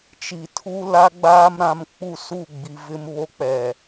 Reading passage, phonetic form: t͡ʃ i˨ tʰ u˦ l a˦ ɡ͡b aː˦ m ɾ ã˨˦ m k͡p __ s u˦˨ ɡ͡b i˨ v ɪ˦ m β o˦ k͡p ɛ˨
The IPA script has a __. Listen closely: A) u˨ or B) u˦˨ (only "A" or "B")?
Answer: B